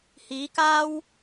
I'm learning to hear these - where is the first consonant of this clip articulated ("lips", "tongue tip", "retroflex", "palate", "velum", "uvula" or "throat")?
throat